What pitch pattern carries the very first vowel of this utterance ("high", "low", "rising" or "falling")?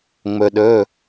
low